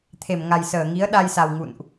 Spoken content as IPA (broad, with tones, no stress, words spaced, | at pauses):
t̪ʰe˧˩m ŋa˨˩jsəː˧˩ŋi˨˦ə̯ ɗa˧jsa˨˩w ŋṵ˧˨nʔ